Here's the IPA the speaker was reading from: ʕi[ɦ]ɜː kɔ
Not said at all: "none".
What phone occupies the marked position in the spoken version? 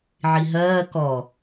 ɦ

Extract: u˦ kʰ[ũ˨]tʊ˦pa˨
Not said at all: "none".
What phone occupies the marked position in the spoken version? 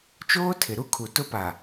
u˨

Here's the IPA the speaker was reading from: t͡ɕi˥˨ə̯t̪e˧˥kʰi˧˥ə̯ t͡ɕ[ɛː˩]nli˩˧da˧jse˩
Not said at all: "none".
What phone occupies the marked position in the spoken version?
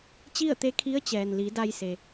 ɛː˩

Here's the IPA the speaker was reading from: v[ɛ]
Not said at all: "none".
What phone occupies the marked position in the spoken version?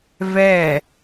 ɛ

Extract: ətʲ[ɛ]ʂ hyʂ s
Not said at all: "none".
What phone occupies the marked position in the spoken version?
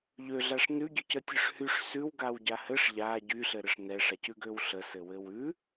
ø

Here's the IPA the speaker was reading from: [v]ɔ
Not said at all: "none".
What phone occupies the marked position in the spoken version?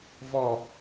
v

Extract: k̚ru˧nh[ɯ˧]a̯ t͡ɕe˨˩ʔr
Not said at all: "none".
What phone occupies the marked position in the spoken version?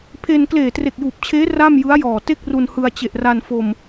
ɯ˧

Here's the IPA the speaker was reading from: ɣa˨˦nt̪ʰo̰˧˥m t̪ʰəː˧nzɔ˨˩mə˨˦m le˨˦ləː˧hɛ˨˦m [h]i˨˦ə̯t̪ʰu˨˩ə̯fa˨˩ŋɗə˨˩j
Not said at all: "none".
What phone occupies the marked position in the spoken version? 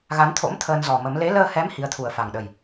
h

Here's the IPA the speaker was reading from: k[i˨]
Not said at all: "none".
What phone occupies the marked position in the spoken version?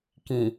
ĩ˨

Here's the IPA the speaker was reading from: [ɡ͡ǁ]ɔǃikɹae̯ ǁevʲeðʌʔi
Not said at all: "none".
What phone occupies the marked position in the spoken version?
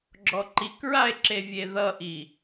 ɡ͡ǁ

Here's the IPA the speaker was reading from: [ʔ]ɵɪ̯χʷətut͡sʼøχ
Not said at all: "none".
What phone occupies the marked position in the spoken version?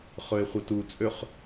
χ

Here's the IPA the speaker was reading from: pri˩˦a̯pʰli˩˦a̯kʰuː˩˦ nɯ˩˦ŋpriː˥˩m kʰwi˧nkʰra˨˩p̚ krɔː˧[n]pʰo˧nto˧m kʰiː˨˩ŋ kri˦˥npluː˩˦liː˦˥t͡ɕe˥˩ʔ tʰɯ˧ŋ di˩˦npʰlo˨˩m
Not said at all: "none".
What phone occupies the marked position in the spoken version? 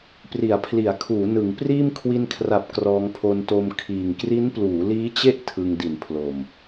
ŋ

